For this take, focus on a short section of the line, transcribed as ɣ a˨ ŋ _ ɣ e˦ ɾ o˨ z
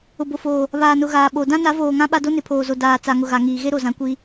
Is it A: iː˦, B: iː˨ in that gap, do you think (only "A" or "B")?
B